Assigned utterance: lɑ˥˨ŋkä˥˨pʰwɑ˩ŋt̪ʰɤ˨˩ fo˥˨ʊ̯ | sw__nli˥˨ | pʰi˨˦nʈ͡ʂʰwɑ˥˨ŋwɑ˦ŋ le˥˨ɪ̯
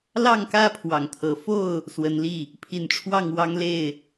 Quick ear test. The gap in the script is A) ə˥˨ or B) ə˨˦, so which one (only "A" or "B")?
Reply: B